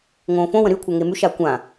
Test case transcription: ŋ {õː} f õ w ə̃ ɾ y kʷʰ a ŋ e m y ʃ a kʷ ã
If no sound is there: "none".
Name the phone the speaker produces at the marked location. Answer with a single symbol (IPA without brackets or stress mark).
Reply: õː